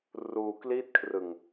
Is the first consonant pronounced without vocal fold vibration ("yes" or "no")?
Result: no